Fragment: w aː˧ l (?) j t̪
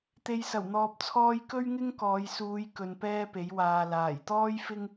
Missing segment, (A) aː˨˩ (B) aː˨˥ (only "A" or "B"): A